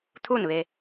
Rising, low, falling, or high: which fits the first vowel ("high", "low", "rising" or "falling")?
falling